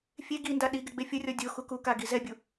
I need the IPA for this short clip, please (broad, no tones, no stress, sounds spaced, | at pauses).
fʲ e ɡ i n d a ɗ i ɡ ɪ ɡ͡b e fʲ ʊ rʲ ɔ dʲ o x u k u k a ɡ i z ɛ bʲ u